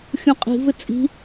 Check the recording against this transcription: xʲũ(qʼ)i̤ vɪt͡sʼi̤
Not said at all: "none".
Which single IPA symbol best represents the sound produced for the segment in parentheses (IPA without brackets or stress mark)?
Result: qʼ